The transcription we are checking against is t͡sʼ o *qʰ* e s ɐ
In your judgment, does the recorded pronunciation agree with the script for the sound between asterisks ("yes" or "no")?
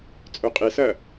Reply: no